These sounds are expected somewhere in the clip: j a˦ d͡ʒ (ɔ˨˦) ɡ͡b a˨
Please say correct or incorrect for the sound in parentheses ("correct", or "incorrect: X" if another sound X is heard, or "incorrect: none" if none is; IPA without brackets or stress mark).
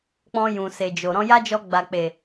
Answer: incorrect: ɔ˧